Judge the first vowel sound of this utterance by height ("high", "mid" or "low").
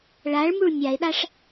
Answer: low